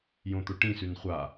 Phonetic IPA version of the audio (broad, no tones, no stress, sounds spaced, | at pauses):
j õ t̪ o ʈ ĩ s ʉ n χʷ a